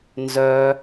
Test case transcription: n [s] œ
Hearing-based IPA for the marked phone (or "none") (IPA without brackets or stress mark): z